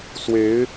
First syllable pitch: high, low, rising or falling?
rising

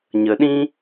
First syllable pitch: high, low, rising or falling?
low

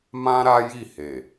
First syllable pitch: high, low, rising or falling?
high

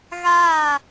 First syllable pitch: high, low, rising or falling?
falling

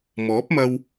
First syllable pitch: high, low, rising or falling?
rising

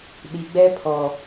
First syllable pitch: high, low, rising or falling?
low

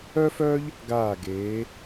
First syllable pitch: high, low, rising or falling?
high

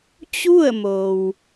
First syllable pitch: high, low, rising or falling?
falling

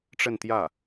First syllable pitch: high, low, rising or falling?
falling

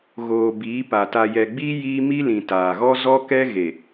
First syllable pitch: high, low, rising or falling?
low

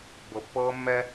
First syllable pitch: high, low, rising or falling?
low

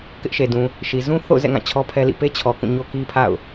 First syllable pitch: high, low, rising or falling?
high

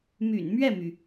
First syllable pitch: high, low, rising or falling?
low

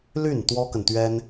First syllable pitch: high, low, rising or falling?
falling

